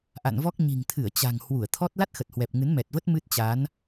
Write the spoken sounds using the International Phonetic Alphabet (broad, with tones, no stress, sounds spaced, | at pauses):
ʔ a̰˧˨ n v ɔ˦˥ k̚ ɲ i̤˨˩ ŋ t̪ʰ ɨ˧˩ ə̯ t͡ɕ a̤˨˩ ŋ h w u˧˩ ə̯ t̪ʰ ɔ˦˥ t̚ l a˦˥ t̚ x ə˨˩ t̚ h w ɛ˨˩ p̚ ŋ ɨ˨˦ n m ɛ˨˩ t̚ v ə˦˥ t̚ m ɨ˦˥ t̚ t͡ɕ a˨˦ n